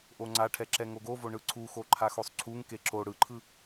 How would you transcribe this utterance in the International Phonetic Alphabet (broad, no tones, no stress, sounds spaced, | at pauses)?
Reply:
ʔ o ŋ͡ǀ a ʈʰ ɛ ǁ ɛ ŋ o ɡ o v o ɳ ɯ ǀʰ u x o ǃʰ a x o sˤ ǀʰ u ŋ k e ǁ o ɽ ɯ ǃʰ ɯ